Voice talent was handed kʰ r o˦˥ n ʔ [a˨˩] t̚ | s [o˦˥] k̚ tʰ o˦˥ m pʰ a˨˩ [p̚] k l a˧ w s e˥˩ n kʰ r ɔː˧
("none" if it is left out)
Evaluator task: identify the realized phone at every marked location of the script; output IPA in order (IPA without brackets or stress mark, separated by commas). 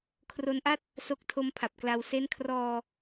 a˥˩, o˦˥, p̚